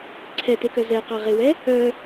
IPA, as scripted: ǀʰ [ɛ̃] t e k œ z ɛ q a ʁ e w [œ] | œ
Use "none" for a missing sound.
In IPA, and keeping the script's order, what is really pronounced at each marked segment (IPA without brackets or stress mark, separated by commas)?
ɛ, ɛ